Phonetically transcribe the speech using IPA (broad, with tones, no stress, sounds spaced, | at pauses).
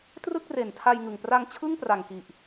t r ɯ˥˩ k̚ r e˨˩ n tʰ a˧ j ŋ ɯ˨˩ ŋ p r a˧ ŋ t͡ɕʰ ɯ˥˩ ŋ p r a˨˩ ŋ k i˨˩ ʔ